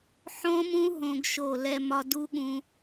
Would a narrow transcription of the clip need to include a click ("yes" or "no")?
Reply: no